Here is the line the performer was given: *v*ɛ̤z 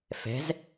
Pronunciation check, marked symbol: incorrect: f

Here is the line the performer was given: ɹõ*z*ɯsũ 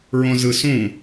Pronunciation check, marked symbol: correct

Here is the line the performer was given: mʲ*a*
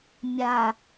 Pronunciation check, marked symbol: correct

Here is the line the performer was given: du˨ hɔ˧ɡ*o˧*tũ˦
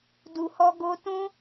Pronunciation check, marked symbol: correct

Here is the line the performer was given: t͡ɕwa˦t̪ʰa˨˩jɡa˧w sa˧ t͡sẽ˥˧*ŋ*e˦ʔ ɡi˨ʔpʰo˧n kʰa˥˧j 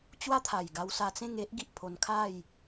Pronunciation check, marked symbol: correct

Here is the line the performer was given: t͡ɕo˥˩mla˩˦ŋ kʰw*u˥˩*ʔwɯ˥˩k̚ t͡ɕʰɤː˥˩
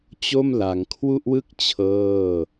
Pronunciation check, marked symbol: correct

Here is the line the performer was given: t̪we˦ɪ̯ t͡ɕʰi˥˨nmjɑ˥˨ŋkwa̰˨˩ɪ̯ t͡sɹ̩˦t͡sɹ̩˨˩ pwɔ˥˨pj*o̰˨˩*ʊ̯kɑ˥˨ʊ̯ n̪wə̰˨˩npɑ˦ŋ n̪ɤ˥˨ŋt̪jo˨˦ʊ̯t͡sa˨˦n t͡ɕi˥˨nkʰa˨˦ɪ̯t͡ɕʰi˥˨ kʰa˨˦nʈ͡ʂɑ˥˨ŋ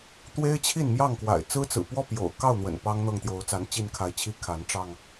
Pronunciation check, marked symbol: correct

